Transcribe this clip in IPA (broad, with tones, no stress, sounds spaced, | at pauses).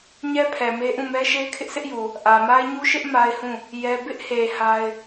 ɲ ɛ˦ pʰ ɛ˨ m e˦ ʔ ũ˦˨ m ɛ˦ ʃ e˦ ɪ̯ kʰ ɪ˦ ʔ s ɪ˦ ʔ j u˨ | ʔ ä˨ m a˦ ɪ̯ ɲ u˦ ʃ ɪ˦ ʔ m a˦ ɪ̯ h ũ˦˨ | j ɛ˦ b ɪ˦ ʔ h e˨ h a˦ ɪ̯